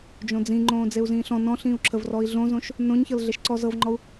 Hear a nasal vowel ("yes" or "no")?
yes